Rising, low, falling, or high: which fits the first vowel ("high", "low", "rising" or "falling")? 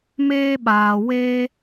high